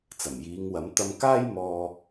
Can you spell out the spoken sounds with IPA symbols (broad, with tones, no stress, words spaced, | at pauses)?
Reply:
t͡sɐ˨˩mjiː˨˧ŋwɐ˨˥m t̪ɐ˧mkaː˥j mɔː˧